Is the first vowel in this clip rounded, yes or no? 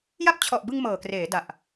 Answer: no